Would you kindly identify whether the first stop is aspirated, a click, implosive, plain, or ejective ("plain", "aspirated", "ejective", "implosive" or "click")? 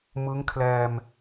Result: aspirated